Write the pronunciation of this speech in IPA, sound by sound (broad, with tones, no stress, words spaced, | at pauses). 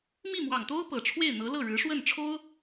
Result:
mi˥˩mwɑ˨˩ŋt̪o˥ʊ̯ pɤ˨˩ʈ͡ʂʰwe˥˩ɪ̯n̪ɤ˧˥ lɤ˥˩ɻɻ̩˧˥ʂwə˥˩n ʈ͡ʂʰo˥ʊ̯